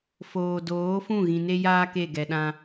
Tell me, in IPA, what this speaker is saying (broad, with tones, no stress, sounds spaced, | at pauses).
f oː˨ d oː˨˦ f ũ˦˨ ɣ ĩ˨ n e˦ j aː˦ k e˦˨ ɡ ɛ˨ ɗ ã˦